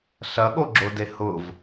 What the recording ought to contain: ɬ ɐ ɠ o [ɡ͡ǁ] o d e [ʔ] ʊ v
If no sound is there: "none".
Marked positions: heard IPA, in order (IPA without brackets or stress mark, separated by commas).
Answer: ɡ͡ǁ, h